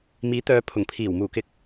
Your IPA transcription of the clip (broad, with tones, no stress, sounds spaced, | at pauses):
m iː˨˥ t̪ œː˨˧ pʰ ʊ˨˩ ŋ pʰ iː˨˩ w m uː˨˩ k ɪ˨ k̚